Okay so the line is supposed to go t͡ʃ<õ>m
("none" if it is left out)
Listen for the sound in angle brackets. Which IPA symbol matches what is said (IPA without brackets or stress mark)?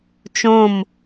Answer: õ